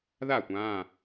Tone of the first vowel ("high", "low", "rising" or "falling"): falling